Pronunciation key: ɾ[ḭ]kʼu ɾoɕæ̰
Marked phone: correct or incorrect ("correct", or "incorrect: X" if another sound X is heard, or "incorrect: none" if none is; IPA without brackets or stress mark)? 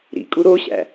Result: correct